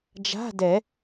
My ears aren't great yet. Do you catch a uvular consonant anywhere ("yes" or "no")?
no